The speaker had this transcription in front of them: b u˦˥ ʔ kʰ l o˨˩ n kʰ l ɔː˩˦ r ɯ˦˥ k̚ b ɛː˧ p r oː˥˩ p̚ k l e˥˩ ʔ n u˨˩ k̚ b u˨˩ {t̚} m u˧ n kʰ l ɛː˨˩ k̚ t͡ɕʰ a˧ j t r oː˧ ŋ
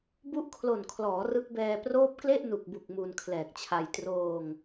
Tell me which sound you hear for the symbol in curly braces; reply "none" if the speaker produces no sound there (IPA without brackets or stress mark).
k̚